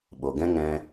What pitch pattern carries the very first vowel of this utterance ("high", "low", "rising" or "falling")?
low